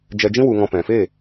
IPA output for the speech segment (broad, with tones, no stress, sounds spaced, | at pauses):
d͡ʒ ɛ˧ d͡ʒ ĩ˦ w u˧ ŋ ɔ̃˧ p ɛ̃˨ f e˦˨